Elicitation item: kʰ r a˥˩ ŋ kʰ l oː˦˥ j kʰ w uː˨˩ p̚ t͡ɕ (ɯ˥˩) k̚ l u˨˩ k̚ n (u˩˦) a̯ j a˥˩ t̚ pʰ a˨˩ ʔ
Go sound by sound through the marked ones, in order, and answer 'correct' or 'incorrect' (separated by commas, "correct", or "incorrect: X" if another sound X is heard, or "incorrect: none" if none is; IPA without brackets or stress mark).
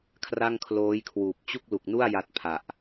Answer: incorrect: u˥˩, incorrect: u˥˩